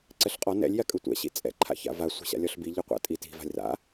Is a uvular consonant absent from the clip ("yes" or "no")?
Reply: no